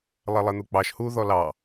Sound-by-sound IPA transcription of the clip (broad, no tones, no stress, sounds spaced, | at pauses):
lˠ ɛ lˠ ɛ n̪ u k͡p ɑ ʃ h u ð ɔ l ɑ